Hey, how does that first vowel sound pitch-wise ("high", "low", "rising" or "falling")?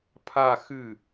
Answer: falling